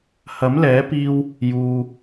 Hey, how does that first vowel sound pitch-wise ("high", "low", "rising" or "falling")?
rising